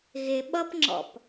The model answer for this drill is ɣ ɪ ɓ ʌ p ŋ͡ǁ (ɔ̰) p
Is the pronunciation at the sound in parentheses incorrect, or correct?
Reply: correct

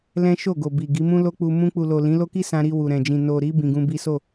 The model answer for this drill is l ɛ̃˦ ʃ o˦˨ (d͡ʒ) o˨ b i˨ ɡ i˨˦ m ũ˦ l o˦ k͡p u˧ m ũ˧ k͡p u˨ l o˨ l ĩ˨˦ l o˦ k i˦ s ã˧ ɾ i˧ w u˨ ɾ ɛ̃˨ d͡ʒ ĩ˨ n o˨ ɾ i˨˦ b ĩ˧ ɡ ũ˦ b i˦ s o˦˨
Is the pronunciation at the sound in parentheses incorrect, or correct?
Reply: incorrect: ɡ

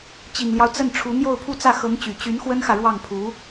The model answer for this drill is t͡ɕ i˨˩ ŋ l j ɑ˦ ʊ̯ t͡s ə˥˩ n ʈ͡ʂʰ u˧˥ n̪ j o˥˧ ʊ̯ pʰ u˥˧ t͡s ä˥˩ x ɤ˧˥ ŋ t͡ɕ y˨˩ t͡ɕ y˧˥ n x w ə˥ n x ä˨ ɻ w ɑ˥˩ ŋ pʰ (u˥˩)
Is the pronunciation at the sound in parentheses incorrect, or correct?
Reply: incorrect: u˧˥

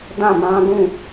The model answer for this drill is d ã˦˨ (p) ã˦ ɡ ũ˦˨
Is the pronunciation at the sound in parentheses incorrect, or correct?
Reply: incorrect: m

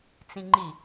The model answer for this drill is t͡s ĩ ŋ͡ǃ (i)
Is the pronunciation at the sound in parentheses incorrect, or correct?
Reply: correct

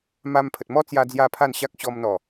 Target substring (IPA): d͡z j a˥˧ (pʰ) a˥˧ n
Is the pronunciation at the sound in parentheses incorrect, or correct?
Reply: correct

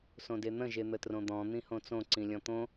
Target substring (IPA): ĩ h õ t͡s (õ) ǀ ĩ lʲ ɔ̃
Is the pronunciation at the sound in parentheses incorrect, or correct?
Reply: correct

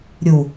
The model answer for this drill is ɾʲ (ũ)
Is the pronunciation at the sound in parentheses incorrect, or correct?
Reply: incorrect: u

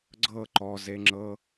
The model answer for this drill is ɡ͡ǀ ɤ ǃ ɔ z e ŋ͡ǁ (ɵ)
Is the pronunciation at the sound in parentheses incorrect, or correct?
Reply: incorrect: ɤ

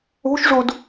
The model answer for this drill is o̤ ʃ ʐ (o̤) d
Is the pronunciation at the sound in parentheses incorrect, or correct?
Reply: incorrect: o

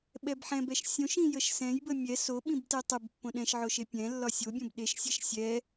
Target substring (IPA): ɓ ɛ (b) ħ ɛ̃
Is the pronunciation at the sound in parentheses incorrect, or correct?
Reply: correct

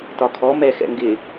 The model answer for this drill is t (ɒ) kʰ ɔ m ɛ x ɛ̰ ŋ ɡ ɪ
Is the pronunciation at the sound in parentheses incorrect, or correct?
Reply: correct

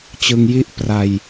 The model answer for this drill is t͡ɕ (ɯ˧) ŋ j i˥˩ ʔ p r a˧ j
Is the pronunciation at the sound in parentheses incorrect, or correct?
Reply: correct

